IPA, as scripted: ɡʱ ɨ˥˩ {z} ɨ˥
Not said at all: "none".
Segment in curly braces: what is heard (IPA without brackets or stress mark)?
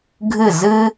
z